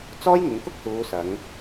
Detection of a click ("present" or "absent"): absent